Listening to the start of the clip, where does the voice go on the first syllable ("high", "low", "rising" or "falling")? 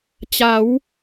rising